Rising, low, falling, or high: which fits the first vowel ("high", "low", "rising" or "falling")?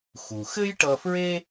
low